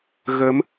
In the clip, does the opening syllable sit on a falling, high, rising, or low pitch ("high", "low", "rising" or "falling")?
rising